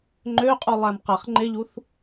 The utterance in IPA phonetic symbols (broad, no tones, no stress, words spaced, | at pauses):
ŋ͡ǃøqʼulˠæm qæχŋ͡ǃeʎuθ